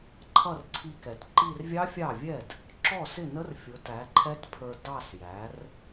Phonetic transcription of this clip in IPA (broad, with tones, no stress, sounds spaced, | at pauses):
ǃʰ ʌ˥˩ r ǀʰ i˧ k ɛ˩ t ǃ i˥˧ r vʲ ɑ˦˥ fʲ ɑ˥˩ vʲ ɛ˥˩ d | ǁ ɔ˥˩ s ɪ˥˩ n ə˦˥ r fʲ ʊ˨˥ t æ˨˥ ǃʰ ɛ˦˥ t pʰ ə˞˧ d ɑ˥˧ s j æ˨˥ r